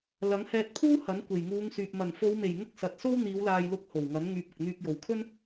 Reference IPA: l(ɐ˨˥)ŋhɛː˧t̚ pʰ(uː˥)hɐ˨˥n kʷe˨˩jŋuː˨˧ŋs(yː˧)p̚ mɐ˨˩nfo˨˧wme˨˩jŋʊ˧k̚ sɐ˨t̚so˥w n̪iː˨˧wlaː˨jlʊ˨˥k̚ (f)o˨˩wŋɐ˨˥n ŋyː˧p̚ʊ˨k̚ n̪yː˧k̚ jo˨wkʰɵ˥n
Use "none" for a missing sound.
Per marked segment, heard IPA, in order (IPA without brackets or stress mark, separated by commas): ɐ˨˥, uː˥, yː˨, h